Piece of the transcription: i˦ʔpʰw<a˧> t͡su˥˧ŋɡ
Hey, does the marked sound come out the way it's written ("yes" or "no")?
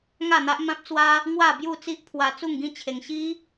yes